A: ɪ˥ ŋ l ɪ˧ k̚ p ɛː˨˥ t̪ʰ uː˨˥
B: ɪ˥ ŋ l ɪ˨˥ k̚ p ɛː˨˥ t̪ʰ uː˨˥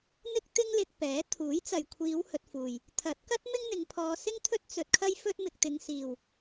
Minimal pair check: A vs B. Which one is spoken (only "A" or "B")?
A